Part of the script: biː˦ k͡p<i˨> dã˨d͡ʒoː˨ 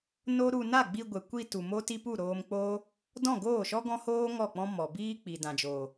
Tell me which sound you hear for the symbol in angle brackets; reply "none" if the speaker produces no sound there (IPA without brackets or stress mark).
i˨